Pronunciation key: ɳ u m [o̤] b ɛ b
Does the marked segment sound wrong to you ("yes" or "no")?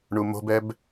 no